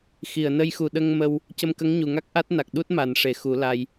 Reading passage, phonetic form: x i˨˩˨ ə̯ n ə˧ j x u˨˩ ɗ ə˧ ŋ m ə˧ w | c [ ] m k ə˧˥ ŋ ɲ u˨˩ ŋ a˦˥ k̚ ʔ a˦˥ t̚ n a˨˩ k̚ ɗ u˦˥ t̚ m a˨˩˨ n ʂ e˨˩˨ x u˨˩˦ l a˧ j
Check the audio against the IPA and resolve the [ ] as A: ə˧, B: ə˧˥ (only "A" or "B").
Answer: A